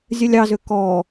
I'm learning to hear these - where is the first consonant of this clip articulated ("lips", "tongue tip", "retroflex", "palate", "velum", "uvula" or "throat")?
tongue tip